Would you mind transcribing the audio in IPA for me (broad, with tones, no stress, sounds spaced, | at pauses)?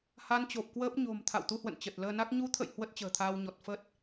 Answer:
h a˧ n t͡ɕ o˨˩ p̚ k w əː˦˥ p̚ ɲ o̤˨˩ m t̪ʰ a̰˧˨ w t̪ u˧ h w ə̰˧˨ n t͡ɕ ə˨˩ t̚ l əː˧ n a˦˥ k̚ ɲ u˨˦ t̪ʰ ə̰˧˨ j h w ə˦˥ t̚ t͡ɕ ə̤ː˨˩ t̪ʰ aː˧ w ɲ ɔ˨˩ t̚ f ə˦˥ t̚